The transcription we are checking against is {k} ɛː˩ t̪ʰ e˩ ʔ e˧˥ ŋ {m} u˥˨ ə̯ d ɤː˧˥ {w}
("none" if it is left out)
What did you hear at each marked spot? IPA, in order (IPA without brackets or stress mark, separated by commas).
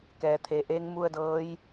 k, m, j